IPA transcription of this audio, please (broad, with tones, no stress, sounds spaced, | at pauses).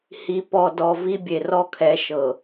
h i˨ p ɔ˨ d ɔ˨ v i˦ bʲ e˨ r ɔ˦ kʰ ɛ˨˦ ʃ ɤ˨